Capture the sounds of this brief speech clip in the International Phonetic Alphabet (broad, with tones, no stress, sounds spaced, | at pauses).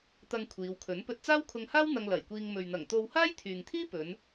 t̪ ɐ˧ ŋ kʷʰ iː˨˧ w kʰ ɵ˨˥ n p ɵ˧ t̚ t͡s aː˥ w kʰ ʊ˧ ŋ h aː˥ w n̪ ɐ˧ ŋ l ɐ˨˩ j kʷ iː˧ ŋ m ɵ˨ ɥ n̪ ɐ˨˩ ŋ t̪ o˧ w h aː˥ j t̪ʰ yː˨ ŋ t̪ʰ iː˥ p ɵ˨˧ n